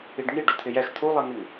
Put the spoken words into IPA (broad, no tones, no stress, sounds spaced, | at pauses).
i ɖ ŋ i ɖ o t̪ʰ ɪ j ɛ x t̪ʰ u lˠ ɛ ŋ ɪ ŋ